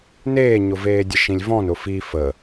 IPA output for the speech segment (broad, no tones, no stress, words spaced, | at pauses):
neːɲʊveːdʲə ʃĩlʲvɔ̃n ʊfi fə